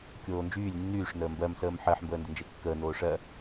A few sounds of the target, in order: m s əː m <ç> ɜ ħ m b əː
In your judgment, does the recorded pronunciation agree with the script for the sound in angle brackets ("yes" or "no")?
no